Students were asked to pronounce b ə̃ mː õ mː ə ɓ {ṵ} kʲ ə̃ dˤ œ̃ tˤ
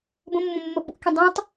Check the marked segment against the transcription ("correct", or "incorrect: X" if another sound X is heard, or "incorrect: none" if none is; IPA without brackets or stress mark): correct